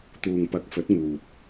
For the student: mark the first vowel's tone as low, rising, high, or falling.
low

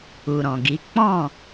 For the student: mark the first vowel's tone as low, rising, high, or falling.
low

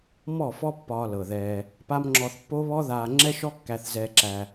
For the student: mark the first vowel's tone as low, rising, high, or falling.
falling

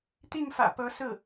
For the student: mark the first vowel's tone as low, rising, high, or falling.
falling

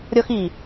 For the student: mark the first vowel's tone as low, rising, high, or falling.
high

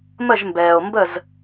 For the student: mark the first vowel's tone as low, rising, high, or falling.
falling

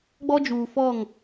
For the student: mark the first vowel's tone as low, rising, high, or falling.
high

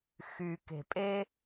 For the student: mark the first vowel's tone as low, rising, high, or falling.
low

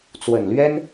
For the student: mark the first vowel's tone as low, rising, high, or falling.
low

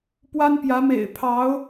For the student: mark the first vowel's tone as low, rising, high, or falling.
high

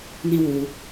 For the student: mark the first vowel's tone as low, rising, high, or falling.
high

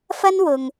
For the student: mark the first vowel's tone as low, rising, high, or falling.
high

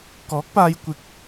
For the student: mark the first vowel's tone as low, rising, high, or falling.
rising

